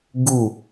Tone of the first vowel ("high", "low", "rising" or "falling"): falling